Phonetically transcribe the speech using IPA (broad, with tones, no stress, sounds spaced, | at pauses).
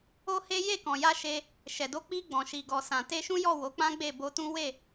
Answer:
o˦ h e˦ j e˦˨ k ɔ̃˨ j a˧ ʃ e˧ | ʃ ɛ˨ d o˧ k͡p i˧ ɡ͡b ɔ̃˨ ʃ i˨ ɡ ɔ˨ s ã˨ t e˧ ʃ ũ˦ j ɔ˦˨ w o˨˦ k͡p ã˦ ɡ͡b e˦˨ b o˧ t ũ˦ w e˦˨